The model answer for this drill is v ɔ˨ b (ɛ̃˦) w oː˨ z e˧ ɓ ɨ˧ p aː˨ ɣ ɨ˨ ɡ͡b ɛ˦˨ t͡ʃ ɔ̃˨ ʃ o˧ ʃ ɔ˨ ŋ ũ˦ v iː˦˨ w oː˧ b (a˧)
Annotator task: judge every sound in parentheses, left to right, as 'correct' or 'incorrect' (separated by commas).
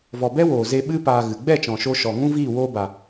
incorrect, incorrect